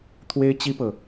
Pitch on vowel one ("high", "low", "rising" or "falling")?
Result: high